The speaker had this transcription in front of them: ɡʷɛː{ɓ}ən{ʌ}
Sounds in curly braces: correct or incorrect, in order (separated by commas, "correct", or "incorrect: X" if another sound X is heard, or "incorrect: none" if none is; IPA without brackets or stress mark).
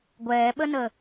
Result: correct, incorrect: ə